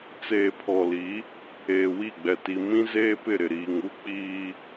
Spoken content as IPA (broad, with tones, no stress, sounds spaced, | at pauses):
t͡s eː˨ pʰ ɔ˨ l i˨˦ | eː˨ w i˦˨ ɡ͡b ɛ˨ t i˨ m ĩ˦ z eː˦ p ɪ˦˨ ɾ ɪ˨ ɾ iː˨ ŋ u˦ k͡p iː˦